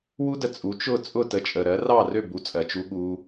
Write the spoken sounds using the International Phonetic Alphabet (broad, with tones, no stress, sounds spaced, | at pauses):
w u˥ d ə˧ t͡sʼ u˩˥ t͡ʃ ʊ˥˩ t͡sʼ ʊ˥˩ t ə˩˥ t͡ʃʼ ə˩ ɾ ɜ˩˥ r ɑ˥˩ r ø˥˩ b u˩˥ t͡sʼ ɜ˩ t͡ʃ u˧ ɠ u˧